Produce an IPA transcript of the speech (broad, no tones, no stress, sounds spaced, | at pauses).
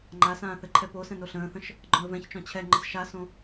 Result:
ŋ͡ǃ a s ãː θ ɘ ǃʰ ɛ p o s ɛ̃ n o ɬ ə̃ː θ ə̃ ʃ | ɡ͡ǃ ɔ̃ ə̯ v ɛ̃ ç t͡ʃ ɔ̃ t͡ɕʰ ɛ ŋ͡ǃ ə s ʃ a s õ